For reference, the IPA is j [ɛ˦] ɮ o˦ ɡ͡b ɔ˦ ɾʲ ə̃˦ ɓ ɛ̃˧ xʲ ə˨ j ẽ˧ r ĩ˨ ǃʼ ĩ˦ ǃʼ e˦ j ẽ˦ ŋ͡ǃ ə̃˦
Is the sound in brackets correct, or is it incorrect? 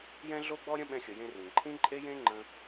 incorrect